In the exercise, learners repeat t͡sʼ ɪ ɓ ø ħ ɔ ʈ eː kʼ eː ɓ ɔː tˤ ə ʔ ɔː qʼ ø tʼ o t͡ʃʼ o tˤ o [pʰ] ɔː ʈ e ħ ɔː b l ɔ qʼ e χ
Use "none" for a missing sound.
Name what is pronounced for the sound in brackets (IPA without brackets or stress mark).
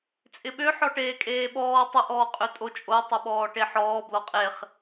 ɓ